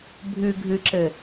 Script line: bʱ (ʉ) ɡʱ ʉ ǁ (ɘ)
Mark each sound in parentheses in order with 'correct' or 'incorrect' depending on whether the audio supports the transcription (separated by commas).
correct, correct